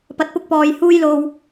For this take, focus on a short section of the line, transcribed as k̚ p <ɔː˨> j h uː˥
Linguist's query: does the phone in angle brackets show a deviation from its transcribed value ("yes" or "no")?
no